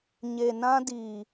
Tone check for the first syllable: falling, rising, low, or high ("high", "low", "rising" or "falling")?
low